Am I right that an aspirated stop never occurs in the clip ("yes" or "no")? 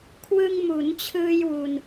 no